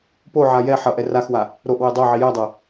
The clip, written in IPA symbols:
p o ʕ a j ɛ ħ ʌ ʔ ɛ r a x w a | ɾ o ʔ w e dˤ o ʕ i j ɛ dˤ ɛ

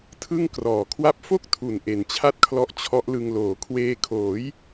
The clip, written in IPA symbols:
tʰ ɯ˥˩ ŋ k r ɔː˨˩ kʰ w a˥˩ p̚ f o˥˩ k̚ tʰ u˨˩ n ʔ e˨˩ n t͡ɕʰ a˥˩ t̚ kʰ l ɔ˦˥ ʔ t͡ɕʰ ɔ˦˥ ʔ l ɯ˧ ŋ l oː˩˦ kʰ w eː˧ kʰ oː˩˦ j

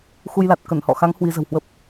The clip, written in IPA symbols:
x u˧ j l a˨˩ t̚ k ə˧˩ n h ɔ̰˧˨ x a˨˦ ŋ h w i˨˦ z ə̤˨˩ w h w ə˦˥ p̚

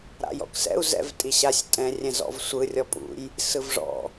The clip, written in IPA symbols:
ɾ a̰ j ɔ̰ k s ɛ̰ u̯ z ɛ̰ v tʼ i ɕ a sʲ tʼ ɛ̃ rʲ ɛ̃ z ɔ̰ v sʷ ɯ rʲ ɔ pʼ ṵ j | s ɯ v ʐ ɔ̰

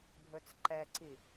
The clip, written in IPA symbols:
bʱ ɵ t͡s ǃ ɛ ǀ i

